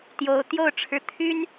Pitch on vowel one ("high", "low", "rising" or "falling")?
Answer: rising